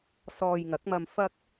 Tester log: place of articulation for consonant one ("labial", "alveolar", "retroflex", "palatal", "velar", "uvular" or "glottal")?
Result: alveolar